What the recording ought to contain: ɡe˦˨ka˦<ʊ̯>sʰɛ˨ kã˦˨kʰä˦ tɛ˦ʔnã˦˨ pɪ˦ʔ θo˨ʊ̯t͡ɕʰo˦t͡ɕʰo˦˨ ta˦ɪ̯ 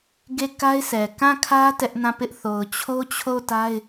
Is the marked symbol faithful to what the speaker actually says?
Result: no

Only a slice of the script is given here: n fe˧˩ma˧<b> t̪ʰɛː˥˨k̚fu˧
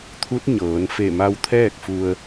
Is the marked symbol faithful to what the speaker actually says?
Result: no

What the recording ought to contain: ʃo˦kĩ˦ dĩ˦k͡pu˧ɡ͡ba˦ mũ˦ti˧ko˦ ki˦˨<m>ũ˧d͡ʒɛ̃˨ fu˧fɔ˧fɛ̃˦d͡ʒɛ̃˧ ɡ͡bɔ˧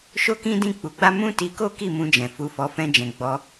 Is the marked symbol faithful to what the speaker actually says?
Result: yes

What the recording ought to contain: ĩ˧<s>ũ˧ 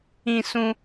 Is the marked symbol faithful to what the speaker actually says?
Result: yes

